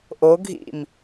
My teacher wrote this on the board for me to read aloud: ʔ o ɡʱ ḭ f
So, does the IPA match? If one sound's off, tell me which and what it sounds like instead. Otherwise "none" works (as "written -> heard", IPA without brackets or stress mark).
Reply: f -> m